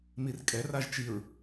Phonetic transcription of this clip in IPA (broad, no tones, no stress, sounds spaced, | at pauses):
m i r kʼ ɛ r a ʒ t͡ʃ i ɹ